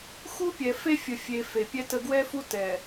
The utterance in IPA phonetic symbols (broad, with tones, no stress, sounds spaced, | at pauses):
x u˦ pʲ ɛ˨ f e˦ fʲ ə˨ fʲ e˨ f e˨ pʲ ɛ˦ t ə˦ ɡ w ɛ˦ f u˦ t ɛ˨